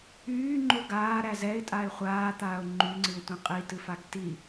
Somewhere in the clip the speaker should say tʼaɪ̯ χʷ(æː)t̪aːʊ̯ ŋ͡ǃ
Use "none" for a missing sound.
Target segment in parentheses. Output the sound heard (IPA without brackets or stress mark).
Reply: aː